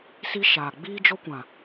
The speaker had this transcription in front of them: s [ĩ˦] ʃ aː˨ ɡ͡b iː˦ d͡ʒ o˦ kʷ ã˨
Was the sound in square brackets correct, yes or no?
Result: no